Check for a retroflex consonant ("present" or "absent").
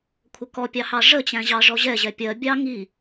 present